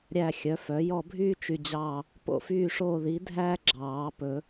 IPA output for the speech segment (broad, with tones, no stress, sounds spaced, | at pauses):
ɾʲ æ˦˨ xʲ œ˩˥ f œ˩˥ j ɔ˦˨ bʱ yː˥ t͡ʃ y˦˨ d͡ʑ ɑː˦˨ | p o̰˦˨ f yː˦˨ ʂ oː˦˨ ð i˩˥ dʱ æ˥ ɡ͡ǁ ɑː˨˩˦ p ɵ˨˩˦